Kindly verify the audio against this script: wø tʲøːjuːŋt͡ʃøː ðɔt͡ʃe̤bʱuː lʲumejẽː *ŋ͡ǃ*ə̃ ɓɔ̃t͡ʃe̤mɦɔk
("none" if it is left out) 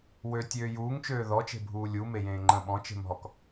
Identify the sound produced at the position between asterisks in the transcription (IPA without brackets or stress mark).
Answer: ŋ͡ǃ